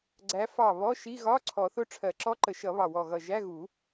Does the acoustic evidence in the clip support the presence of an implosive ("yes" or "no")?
no